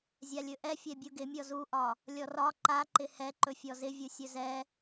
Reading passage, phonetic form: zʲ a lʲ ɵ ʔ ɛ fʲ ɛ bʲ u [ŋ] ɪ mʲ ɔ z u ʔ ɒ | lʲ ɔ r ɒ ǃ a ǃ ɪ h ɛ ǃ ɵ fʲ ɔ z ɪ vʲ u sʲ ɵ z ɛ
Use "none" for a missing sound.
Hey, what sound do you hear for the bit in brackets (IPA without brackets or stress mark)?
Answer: ɡ